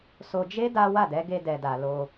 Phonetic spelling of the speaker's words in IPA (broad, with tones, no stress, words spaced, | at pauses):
so˧ d͡ʒe˦ da˦ wa˦˨dɛ˨˦ɡe˧ dɛ˨da˨ lo˧